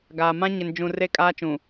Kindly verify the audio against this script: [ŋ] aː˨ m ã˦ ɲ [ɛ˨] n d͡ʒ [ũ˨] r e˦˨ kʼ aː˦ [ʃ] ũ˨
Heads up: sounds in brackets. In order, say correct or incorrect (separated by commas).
incorrect, incorrect, correct, incorrect